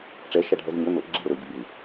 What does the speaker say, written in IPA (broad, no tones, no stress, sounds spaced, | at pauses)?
ʈ͡ʂ ɛ ʃ a ɖʱ ɛ z ɲ ɵ n ʊ ʔ ɡ͡ǁ i ɾ ʊ ɾ ɵ ɟ ʊ b ɯ